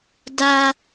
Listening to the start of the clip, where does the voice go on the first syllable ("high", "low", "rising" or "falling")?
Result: high